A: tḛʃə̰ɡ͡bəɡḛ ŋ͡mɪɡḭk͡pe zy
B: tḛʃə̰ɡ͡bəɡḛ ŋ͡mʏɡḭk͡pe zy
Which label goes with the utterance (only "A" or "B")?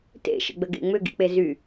B